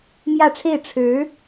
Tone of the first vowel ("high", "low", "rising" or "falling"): falling